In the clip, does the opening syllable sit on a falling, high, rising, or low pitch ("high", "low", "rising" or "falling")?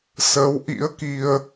rising